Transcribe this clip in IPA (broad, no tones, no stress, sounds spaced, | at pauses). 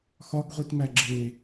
x ɒ ɡ ʁʷ i t m æ ɡ͡ǁ eː